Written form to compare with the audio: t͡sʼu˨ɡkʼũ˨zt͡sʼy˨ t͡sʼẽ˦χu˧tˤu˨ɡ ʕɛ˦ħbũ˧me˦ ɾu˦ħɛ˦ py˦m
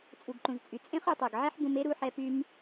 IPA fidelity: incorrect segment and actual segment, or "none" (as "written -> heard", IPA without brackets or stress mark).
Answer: kʼ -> ǃ